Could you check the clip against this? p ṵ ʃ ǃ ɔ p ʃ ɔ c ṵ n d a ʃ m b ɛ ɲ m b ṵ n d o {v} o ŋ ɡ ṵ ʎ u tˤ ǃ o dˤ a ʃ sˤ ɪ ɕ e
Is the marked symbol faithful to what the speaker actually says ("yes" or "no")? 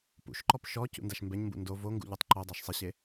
yes